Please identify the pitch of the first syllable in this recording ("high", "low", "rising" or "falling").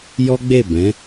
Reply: high